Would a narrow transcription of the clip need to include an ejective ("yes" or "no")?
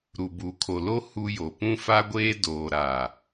no